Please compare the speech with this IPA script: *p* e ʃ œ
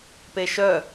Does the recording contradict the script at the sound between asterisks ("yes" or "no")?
no